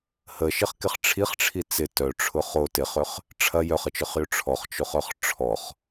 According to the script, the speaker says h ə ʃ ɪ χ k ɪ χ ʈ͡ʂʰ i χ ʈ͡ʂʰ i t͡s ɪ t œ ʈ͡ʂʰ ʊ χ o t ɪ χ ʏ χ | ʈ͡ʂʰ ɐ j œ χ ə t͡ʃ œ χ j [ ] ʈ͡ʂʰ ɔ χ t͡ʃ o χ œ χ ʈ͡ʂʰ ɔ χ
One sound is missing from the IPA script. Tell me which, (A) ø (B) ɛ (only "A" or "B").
A